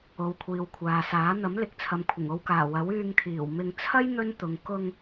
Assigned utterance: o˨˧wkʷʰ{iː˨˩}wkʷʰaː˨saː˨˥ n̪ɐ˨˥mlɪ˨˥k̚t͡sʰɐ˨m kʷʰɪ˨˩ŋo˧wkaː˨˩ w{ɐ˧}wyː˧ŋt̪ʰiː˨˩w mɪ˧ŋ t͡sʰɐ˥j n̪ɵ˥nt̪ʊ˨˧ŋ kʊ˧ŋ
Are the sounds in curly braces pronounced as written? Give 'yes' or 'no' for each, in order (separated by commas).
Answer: no, no